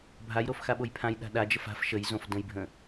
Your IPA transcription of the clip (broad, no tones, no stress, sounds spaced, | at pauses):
bʱ a j ɾ o f x a ɓ o j pʰ ã j ɗ a̤ ɗ a d͡ʒ ə f a̤ f ʃ ə j z õ f d ə̃ j bʱ ə̃